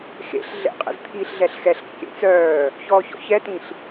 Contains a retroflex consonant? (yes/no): no